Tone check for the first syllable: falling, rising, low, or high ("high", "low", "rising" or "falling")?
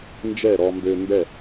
falling